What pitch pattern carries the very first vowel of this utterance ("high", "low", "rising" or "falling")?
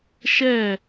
falling